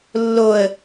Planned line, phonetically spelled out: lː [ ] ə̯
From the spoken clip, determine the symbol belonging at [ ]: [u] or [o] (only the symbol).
o